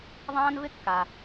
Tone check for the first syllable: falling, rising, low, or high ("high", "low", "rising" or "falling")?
high